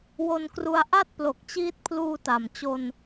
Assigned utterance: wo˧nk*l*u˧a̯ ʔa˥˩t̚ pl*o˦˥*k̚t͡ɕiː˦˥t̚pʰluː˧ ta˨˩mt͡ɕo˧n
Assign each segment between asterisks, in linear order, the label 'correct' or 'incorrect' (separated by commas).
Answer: incorrect, incorrect